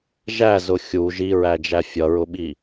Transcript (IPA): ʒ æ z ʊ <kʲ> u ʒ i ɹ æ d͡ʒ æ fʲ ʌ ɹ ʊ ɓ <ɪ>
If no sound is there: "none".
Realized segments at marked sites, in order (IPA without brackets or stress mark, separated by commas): xʲ, i